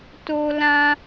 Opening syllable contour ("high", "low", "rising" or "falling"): high